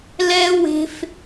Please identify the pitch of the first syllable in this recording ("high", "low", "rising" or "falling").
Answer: high